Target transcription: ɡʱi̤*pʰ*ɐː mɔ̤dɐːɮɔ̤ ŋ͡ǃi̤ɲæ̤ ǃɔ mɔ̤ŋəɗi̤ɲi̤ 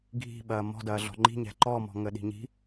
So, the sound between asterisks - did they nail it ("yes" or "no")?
no